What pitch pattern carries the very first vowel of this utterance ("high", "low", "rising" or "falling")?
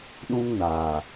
high